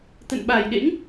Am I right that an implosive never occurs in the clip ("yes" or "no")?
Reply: no